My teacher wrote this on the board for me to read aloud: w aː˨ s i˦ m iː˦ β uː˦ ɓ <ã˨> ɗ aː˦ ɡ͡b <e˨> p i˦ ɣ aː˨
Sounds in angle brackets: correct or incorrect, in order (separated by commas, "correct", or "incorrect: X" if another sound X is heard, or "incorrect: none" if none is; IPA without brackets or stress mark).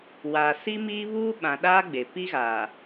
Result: correct, correct